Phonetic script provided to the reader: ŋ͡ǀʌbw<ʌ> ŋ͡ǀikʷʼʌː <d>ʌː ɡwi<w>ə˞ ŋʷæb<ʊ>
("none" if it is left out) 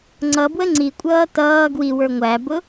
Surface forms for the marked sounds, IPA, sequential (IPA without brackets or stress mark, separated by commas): ə, t, w, ʊ